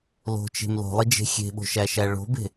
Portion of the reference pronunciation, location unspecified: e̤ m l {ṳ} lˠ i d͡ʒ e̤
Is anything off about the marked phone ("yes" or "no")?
yes